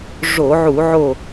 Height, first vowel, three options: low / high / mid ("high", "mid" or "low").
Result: mid